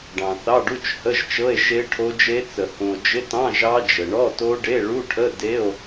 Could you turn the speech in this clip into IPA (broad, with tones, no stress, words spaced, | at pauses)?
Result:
ɖɑ̃˨θɑ˧˥˧ɖu˧˥˧t͡ʃ hə˧˥˧ʒt͡ʃɤ˧˥˧e̯ ʃe˦˥ʈʰo˦˥d͡ʒe˦˥ t͡sə˨hũ˨o̯ d͡ʒɪ˧˥˧tɑ̃˧˥˧ ʒɑ˦˥ d͡ʒə˨ ɳɔ˧˥˧to˦˥ɖe˧˥˧ ɭu˧˥˧ʈʰə˧˥˧ de˧˥˧o̯